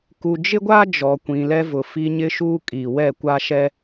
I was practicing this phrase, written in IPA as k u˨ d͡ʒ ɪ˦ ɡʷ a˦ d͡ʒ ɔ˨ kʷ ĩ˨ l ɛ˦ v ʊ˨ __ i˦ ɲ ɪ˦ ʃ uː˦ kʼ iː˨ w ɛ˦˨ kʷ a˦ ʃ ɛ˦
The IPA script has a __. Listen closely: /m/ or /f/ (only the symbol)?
f